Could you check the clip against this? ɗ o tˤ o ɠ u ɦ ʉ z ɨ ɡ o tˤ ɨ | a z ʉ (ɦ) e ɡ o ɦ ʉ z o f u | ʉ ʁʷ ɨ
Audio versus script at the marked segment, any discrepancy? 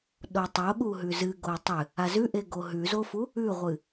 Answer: yes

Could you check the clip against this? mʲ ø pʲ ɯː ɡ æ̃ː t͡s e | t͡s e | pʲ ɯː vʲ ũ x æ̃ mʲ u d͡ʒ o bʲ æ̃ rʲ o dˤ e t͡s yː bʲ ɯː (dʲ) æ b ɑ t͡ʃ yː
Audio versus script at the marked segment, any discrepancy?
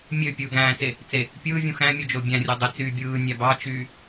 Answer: yes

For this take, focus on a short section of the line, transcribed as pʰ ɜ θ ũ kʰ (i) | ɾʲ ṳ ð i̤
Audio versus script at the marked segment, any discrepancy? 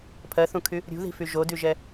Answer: yes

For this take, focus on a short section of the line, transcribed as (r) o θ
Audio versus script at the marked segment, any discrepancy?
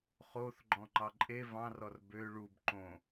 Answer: yes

